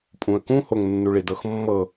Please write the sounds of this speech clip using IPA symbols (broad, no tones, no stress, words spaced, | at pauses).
pʼũə̯kũ hoŋnːuɭidɤx mːɤ